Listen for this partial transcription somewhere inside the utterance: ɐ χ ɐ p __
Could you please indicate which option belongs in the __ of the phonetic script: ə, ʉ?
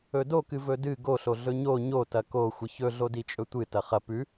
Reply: ʉ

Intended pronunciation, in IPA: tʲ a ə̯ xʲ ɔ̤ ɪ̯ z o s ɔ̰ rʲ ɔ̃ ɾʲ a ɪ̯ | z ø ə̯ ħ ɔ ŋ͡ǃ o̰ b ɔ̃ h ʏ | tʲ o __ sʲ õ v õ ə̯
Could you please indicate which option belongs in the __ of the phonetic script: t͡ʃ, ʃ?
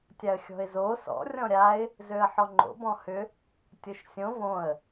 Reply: ʃ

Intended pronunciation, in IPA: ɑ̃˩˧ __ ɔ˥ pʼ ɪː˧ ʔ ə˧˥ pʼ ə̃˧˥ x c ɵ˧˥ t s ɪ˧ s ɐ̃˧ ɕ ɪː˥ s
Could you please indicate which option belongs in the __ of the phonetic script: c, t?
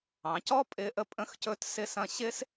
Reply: c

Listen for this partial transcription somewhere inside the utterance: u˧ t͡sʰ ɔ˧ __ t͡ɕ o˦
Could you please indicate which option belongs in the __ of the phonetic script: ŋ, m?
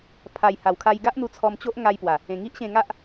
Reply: m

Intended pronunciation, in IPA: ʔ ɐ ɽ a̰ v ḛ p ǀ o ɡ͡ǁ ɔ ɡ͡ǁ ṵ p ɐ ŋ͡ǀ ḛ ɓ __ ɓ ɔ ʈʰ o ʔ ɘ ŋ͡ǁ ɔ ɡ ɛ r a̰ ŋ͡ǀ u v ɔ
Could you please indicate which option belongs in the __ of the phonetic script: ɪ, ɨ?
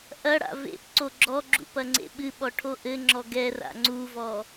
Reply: ɨ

